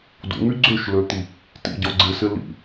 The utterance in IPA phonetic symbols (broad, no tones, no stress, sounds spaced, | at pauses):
d ṵ ŋ y ɡ͡ǀ ø ʃ l ø t̪ i | t ḭ ɟ ɔ ɡ͡ǀ ɪ s ɪ l ḭ